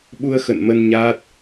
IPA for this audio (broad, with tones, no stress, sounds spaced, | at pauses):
ɓ u˧ ə̯ x ə̰˧˨ n m ə˧ n ɲ aː˦˥ t̚